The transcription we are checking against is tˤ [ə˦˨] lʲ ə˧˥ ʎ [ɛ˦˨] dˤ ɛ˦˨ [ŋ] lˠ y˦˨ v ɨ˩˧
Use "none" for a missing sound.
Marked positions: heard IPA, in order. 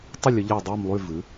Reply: ə˦˨, ɛ˦˨, m

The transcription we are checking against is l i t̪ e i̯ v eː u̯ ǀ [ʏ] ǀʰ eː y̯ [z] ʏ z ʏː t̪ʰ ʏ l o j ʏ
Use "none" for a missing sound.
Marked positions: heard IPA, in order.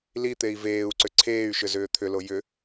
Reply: ʏ, ʃ

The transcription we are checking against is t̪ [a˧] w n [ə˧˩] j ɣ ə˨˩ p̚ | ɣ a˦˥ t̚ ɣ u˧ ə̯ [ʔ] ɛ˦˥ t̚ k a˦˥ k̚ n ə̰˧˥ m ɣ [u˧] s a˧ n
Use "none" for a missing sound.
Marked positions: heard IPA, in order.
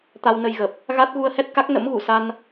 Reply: a˧, ə˧, h, u˧˩

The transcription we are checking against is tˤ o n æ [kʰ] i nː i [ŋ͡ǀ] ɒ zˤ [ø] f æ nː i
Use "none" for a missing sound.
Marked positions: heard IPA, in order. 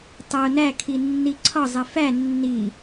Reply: kʰ, ǀʰ, e

